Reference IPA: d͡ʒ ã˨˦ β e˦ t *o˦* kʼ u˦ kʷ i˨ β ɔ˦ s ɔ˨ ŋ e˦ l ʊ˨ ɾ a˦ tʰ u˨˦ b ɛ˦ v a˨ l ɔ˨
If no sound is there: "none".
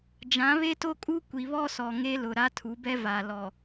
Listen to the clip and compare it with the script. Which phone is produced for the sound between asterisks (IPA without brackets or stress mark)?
o˦